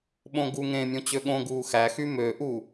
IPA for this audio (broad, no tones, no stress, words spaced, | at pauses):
ɓõɡuŋẽmʲõ t͡ɕøɠõɡuː xæxy møʔu